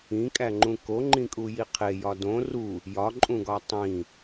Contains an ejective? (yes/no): yes